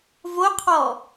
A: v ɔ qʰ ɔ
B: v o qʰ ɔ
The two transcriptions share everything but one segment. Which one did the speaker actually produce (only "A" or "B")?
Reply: B